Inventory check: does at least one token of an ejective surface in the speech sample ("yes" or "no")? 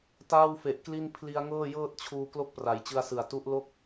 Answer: no